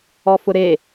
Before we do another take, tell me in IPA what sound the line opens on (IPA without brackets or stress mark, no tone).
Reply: ɔ